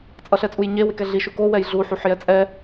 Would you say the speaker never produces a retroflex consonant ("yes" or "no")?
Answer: yes